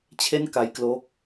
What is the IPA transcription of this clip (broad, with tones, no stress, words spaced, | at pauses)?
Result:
t͡ɕʰe˥˩nka˦˥jklo˦˥k̚